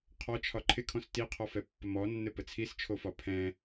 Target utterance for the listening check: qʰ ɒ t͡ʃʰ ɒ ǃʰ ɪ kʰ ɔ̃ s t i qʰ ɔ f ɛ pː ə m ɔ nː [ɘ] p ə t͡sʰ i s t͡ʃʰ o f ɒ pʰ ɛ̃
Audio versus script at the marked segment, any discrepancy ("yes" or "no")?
no